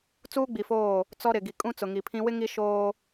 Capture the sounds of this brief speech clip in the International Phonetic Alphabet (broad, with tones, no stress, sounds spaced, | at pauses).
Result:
t͡s uː˦ ɡ͡b i˨ f oː˦˨ | t͡s ɔ˦ ɾ ɪ˨ ɡ i˨ kʼ ũ˦ t͡s ʊ˨ ŋ i˨ pʰ ĩ˦ w ɪ˦ ŋ i˦ ʃ oː˦